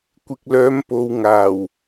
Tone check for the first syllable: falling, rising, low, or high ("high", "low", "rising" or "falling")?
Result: low